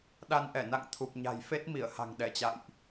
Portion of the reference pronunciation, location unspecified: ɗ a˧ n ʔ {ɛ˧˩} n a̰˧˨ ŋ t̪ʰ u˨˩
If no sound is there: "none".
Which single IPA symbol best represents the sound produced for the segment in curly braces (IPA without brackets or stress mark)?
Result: ɛ˧˩